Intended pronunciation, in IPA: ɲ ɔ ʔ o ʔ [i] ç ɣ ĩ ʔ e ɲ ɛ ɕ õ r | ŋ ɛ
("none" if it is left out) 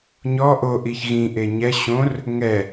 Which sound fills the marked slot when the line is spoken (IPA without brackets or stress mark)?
i